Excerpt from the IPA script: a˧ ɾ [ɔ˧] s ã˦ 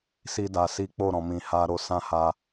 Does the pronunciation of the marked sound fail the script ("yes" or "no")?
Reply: yes